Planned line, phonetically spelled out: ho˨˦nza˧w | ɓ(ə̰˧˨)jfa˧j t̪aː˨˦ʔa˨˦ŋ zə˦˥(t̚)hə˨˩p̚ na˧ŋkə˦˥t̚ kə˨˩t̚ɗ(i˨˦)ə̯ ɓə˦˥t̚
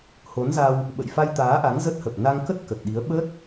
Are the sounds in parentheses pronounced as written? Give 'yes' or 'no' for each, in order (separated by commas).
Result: yes, yes, yes